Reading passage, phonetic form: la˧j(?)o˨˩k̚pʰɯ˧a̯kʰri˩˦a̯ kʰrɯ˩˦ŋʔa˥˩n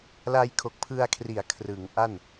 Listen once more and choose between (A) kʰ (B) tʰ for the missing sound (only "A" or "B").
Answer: A